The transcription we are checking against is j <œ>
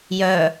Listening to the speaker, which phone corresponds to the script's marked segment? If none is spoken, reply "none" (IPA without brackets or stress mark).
œ